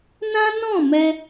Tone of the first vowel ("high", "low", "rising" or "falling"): high